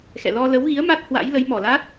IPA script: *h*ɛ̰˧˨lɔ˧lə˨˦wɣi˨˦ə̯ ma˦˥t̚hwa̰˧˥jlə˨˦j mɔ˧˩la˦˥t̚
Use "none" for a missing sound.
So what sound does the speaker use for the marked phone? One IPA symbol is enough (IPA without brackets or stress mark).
x